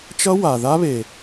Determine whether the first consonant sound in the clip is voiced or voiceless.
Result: voiceless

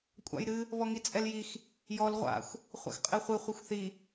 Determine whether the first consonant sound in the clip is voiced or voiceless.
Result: voiceless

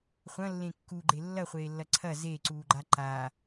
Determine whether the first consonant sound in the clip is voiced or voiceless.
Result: voiceless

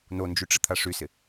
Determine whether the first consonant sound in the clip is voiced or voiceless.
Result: voiced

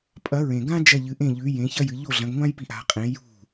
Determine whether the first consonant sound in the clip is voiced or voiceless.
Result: voiceless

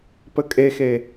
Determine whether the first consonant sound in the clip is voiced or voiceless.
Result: voiceless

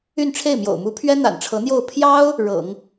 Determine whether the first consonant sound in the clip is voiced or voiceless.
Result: voiced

